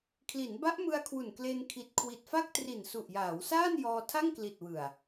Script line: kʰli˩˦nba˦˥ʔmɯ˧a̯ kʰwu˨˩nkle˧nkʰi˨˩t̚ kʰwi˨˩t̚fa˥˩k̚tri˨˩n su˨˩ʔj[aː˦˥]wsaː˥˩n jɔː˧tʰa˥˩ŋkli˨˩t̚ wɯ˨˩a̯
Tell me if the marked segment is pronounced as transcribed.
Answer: no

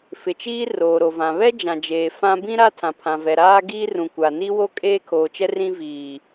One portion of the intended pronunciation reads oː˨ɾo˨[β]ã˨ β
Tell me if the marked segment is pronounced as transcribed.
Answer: no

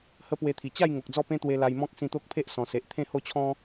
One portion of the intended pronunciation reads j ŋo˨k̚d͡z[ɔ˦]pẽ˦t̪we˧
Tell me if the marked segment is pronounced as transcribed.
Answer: no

